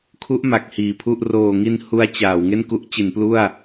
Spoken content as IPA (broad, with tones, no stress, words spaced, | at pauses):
kʰu˦˥ʔ ma˨˩k̚hiː˨˩pʰu˥˩ʔ roː˨˩ŋi˧n hu˦˥a̯t͡ɕaː˩˦w ŋe˥˩nku˦˥ʔt͡ɕi˩˦n plu˥˩a̯